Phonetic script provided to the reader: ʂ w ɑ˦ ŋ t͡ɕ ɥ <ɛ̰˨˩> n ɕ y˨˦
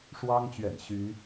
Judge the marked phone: correct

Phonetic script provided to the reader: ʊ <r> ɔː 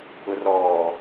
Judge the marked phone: correct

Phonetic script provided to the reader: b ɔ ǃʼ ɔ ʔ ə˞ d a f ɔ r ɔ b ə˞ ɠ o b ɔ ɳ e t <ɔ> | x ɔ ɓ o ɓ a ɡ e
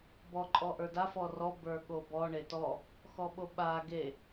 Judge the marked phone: correct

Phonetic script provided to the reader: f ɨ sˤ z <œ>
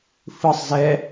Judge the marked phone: incorrect: ɛ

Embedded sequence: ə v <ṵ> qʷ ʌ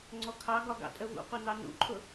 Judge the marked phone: correct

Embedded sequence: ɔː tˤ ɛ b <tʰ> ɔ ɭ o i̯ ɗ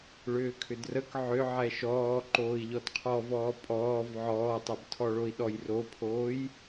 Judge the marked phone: correct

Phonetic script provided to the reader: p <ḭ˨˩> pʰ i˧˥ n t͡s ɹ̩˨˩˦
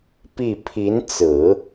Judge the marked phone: incorrect: i˥˩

